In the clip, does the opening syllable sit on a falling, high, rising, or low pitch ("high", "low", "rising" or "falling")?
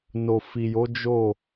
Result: low